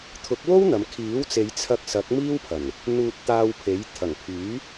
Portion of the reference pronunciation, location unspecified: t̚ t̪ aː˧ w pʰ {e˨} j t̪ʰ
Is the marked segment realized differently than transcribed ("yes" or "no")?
yes